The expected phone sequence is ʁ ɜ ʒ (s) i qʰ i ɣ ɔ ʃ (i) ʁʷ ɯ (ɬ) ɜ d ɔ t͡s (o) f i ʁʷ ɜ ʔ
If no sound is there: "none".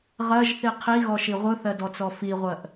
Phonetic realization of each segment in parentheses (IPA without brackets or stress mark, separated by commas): θ, i, θ, ɔ